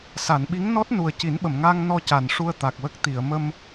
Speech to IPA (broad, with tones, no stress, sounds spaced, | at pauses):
s a˨˩˨ n ɓ i˧˥ ŋ n ɔ˦˥ t̚ n u˨˩ ə̯ c i˨˩˦ n ɓ ə˨˩˨ m ŋ aː˧ ŋ n ɔ˧ c a˨˩ n ʂ u˧ ə̯ t̪ a˨˩ k̚ w ə˦˥ k̚ t̪ i˨˩˨ ə̯ m ə˧ m